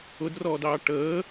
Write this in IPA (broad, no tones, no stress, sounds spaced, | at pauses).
ʊ d r ɔː d ɑː ʈ əː